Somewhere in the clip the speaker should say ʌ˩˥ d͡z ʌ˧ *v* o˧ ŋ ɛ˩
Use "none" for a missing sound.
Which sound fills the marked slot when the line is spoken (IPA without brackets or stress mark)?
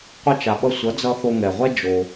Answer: θ